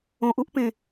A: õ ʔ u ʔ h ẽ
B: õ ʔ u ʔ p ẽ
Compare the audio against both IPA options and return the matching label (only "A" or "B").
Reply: B